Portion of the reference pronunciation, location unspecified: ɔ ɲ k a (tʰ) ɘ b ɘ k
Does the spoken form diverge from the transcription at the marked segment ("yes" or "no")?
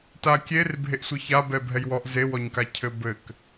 yes